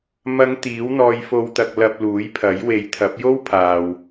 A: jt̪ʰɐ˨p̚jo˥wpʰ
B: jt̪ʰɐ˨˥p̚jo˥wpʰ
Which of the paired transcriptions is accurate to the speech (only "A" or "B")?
B